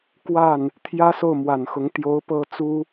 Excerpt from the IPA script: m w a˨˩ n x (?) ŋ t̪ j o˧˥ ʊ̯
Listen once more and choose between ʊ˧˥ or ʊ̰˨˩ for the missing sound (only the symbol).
ʊ˧˥